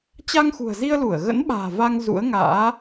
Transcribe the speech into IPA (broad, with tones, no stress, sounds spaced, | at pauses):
t͡ɕ a˧ ŋ x ṳ˨˩ ə̯ z i˧ ə̯ l u˧˩ ə̯ ɣ ə̰˧˥ n ɓ a̤ː˨˩ v a˧ ŋ z ṵ˧˥ ə̯ ŋ a̰ː˧˥